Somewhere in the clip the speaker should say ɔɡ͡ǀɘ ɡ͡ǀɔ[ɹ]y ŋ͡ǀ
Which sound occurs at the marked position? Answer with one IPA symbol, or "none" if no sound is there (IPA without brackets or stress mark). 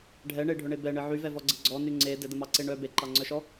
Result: n